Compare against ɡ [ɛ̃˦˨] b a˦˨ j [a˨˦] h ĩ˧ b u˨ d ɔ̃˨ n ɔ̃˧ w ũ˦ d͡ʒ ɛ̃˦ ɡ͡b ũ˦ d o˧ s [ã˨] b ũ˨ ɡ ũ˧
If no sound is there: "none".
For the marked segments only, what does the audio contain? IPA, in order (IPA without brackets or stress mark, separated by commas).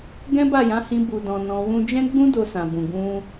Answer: ɛ̃˦, ã˨˦, ã˨